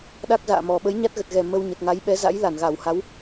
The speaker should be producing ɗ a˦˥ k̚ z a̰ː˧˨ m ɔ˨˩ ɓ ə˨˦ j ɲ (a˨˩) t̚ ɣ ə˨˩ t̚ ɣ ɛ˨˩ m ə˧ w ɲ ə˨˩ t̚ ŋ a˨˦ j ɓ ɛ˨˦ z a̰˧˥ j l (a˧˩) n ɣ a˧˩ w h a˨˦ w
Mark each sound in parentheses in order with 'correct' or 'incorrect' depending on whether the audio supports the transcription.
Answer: incorrect: a˦˥, correct

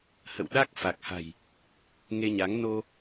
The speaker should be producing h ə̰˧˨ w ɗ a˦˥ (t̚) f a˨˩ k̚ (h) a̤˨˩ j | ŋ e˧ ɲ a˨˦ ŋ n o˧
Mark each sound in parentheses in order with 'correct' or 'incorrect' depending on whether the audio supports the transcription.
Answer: incorrect: k̚, correct

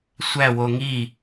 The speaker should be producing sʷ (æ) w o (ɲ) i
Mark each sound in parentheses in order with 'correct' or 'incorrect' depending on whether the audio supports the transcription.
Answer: correct, incorrect: ŋ

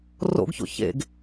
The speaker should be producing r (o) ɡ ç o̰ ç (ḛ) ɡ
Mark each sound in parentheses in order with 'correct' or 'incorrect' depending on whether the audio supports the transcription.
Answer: incorrect: o̰, correct

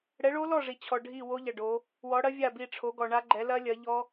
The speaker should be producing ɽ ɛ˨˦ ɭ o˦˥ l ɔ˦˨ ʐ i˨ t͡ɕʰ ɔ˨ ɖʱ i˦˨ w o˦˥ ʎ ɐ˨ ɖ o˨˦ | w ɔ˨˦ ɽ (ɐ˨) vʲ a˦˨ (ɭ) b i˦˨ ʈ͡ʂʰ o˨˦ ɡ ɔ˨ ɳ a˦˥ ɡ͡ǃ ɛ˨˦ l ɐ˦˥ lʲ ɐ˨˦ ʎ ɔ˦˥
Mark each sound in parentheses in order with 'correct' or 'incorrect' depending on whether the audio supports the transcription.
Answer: incorrect: ɐ˦˥, incorrect: none

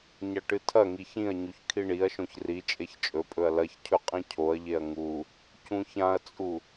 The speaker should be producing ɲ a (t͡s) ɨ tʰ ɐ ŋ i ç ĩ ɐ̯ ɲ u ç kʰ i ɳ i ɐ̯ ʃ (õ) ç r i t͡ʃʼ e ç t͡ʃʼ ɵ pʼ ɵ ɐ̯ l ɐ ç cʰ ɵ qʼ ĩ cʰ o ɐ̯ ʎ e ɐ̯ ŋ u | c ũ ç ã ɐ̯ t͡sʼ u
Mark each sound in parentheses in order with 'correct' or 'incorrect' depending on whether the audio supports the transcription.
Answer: incorrect: ʈ, correct

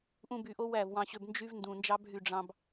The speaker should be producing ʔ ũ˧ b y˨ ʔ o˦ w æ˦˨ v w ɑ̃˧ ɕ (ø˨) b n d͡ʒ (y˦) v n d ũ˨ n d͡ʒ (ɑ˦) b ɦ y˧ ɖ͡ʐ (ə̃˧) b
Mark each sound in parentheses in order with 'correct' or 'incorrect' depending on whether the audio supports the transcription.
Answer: incorrect: ø˧, correct, correct, incorrect: ɑ̃˧

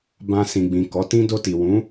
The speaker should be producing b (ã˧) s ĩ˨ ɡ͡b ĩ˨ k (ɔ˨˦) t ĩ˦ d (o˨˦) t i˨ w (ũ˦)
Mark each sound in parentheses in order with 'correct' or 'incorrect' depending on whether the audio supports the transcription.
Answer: correct, correct, incorrect: o˧, incorrect: ũ˨˦

